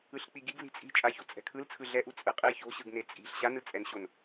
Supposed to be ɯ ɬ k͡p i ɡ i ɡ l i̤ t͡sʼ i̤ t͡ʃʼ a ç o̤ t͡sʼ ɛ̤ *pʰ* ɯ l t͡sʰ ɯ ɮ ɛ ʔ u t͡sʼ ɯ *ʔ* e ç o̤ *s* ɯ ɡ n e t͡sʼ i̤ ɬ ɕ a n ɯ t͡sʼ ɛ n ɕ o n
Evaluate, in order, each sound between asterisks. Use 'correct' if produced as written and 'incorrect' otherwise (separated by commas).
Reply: incorrect, incorrect, incorrect